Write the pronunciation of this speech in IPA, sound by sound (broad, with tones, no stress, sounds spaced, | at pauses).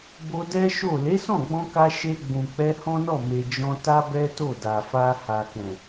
b o˧ d ɛ˦ ʃ o˦˨ l e˨˦ s ɔ̃˦˨ ɡ͡b ɔ̃˧ k a˧ ʃ e˧ ɡ͡b ũ˨ k͡p ɛ˧ h ɔ̃˦ n ɔ˦˨ m e˨ d͡ʒ ɔ̃˧ t a˦ b ɛ˦ t o˦˨ d a˨ f a˧ h a˨ k ɛ̃˨